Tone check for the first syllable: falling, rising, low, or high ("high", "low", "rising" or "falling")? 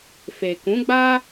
low